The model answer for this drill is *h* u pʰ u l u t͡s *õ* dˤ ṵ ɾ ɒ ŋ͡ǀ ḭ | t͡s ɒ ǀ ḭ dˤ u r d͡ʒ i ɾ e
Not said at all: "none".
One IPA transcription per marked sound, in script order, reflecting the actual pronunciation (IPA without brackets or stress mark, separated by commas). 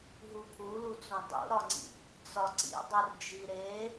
ɦ, õ